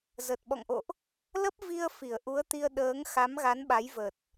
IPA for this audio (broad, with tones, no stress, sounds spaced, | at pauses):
z ə˨˩ t̚ ɓ ɔ̰˧˨ ŋ ʔ o̰˧˨ ʔ | l ə˦˥ p̚ v i˧ ə̯ f i˧˩ ə̯ ʔ u˨˦ ə̯ t̪ i˧ ə̯ ɗ əː˨˦ ŋ x a˨˦ m ɣ a˨˦ n ɓ a˨˦ j v ə˨˩ t̚